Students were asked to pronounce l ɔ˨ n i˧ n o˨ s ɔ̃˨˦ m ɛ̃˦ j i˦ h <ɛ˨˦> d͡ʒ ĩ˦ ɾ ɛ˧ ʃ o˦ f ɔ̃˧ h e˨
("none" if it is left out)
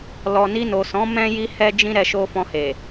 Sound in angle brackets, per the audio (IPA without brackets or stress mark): ɛ˦